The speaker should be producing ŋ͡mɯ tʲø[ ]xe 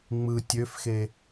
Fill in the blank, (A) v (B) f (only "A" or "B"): B